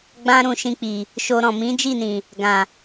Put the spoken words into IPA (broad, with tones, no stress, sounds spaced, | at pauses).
ɡ͡b ã˦ ɾ ũ˧ ʃ ĩ˧ k͡p i˨ | ʃ o˧ ɾ ɔ̃˨ m ĩ˨˦ d͡ʒ i˦˨ n ĩ˨ | ɡ ã˨